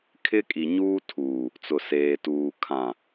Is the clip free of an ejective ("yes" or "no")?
no